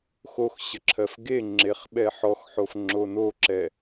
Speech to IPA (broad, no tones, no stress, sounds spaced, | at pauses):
x o x ɕ ə ǁʰ ɜ f ɡ e ŋ͡ǁ e χ ɓ ɛ ħ ɔ x ħ o f ŋ͡ǁ o n o ǁ ɛ